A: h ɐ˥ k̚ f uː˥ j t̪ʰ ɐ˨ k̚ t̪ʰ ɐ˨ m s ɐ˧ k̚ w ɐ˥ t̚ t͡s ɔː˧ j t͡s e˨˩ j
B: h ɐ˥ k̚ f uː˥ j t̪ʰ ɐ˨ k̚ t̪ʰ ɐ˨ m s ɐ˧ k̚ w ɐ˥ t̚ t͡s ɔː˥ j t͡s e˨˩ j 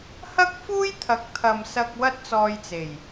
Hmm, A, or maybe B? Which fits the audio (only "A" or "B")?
A